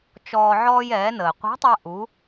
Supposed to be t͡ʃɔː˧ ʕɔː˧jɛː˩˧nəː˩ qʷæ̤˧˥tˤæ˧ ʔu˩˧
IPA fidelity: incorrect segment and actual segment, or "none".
none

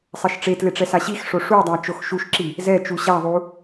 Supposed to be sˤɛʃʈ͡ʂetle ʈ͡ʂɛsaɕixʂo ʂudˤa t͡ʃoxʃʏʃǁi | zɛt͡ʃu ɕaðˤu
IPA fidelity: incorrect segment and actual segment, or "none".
ʏ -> u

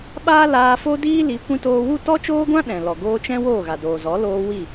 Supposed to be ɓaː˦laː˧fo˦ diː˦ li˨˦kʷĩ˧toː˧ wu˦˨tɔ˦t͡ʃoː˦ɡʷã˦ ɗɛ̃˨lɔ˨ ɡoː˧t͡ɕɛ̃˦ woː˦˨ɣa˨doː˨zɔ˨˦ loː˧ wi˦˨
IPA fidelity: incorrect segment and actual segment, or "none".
t͡ɕ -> t͡ʃ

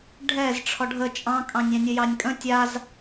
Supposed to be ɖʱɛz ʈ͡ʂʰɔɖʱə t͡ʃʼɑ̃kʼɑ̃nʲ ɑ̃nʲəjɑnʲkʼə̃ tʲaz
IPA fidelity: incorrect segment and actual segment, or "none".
none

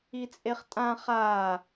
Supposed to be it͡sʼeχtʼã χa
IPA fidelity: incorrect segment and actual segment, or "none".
none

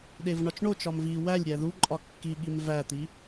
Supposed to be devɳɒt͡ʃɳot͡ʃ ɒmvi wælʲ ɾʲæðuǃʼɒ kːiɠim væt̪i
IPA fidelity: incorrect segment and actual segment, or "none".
d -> ɗ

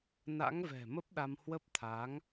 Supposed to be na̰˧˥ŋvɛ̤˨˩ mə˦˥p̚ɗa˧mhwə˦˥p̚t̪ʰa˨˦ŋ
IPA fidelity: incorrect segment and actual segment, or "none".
none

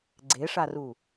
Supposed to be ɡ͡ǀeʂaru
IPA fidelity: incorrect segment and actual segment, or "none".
none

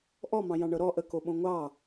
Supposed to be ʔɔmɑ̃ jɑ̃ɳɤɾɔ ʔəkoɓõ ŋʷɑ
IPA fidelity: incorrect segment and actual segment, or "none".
none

